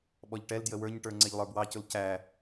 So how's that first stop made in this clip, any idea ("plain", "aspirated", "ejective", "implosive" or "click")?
implosive